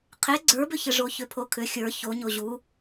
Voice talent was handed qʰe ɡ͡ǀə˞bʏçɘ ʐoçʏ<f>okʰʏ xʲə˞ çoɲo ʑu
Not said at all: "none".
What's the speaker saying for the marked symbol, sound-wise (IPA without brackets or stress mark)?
pʰ